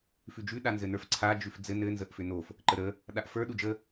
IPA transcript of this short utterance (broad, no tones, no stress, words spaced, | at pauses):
fʉd͡ʒʉ ɗanzɘnə˞fǀʰa d͡ʒʉfd͡zɘ nɘ nzəʔfʏnof | ǃəɾə | ɗaʔfə˞ ɗud͡ʒə